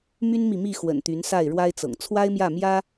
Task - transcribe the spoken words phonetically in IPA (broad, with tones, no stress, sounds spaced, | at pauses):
m y˦ n m i˨ m i˥˨ x w ə̰˨˩ n t̪ y˨˦ n s a˥˨ ɪ̯ ɻ w a˦ ɪ̯ t͡s ɤ̰˨˩ ŋ t͡sʰ w a˦ ɪ̯ m j ä˥˨ m j ä˦